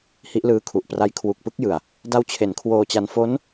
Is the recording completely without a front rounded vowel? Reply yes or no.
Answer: yes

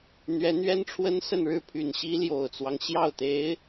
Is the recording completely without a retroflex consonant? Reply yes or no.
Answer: no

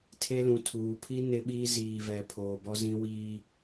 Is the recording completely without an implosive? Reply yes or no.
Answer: no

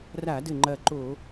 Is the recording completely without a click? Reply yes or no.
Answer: no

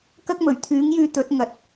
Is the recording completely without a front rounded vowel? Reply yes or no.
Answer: no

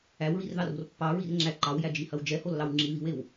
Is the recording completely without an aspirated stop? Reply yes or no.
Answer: yes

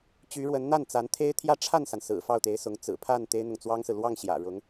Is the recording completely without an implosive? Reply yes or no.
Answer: yes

